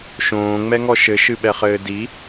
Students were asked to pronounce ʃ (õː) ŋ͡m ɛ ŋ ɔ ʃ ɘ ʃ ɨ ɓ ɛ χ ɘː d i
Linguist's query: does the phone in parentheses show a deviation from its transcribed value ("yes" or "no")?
no